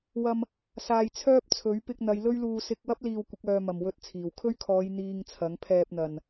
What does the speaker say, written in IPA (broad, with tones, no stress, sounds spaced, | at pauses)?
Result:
w ɐ˧ m | s aː˨ j t͡sʰ œː˥ p̚ t͡sʰ ɵ˨˥ ɥ p ɪ˧ k̚ n̪ ɐ˨˧ j l ɵ˥ ɥ l uː˧ s ɪ˧ k̚ w ɐ˥ p̚ l iː˧ w kʷ ɪ˨˥ k̚ œː˨ m ɐ˨˩ m w ɵ˧ t̚ t͡sʰ iː˨˩ w kʰ ɵ˥ ɥ kʰ ɔː˨˧ j n̪ iː˧ ŋ t͡sʰ ɐ˨˥ ŋ pʰ ɛː˧ p̚ n̪ ɐ˨ n